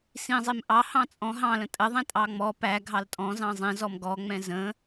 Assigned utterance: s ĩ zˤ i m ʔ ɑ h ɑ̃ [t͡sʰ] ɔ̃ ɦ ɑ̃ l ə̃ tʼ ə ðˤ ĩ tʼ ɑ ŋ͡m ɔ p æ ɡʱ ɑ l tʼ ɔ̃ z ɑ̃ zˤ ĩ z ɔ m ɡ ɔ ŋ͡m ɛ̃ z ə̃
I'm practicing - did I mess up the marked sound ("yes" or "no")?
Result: yes